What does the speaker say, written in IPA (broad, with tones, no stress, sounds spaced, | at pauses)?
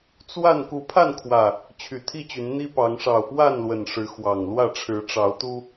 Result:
t͡s w a˥˨ n k u˨˦ pʰ a˥˨ n kʰ w ä˨˩ | t͡ɕʰ y˨˩ t̪ʰ i˥˨ t͡ɕ y˨˦ n n̪ i˦ p ɑ˨˦ ŋ ʂ ɑ˨˩ ʊ̯ p w a˥˨ n l w ə˨˩ n ʂ ɻ̩˨˦ x w ɑ˨˩ ŋ l w ä˥˨ ʈ͡ʂʰ ɻ̩˨˦ ʈ͡ʂ ɑ˨˦ ʊ̯ t̪ u˦